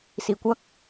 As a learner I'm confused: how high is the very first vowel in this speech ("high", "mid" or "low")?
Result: high